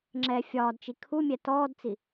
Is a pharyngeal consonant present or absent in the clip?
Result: absent